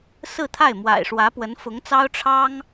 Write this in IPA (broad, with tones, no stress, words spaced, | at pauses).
sɹ̩˥˧t̪ʰa˥˩ɪ̯ mwa̰˨˩ɪ̯ʂwä˧˥ pwə˧˥nfʊ˧˥ŋt͡sɑ˥ʊ̯ ʈ͡ʂʰɑ˥ŋ